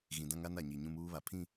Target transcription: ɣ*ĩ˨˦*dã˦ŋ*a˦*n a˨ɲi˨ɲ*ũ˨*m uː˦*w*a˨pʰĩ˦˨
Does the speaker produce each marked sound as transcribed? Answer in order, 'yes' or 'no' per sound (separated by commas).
no, yes, no, no